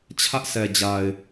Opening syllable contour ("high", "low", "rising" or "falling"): high